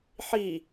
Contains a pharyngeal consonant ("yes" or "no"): yes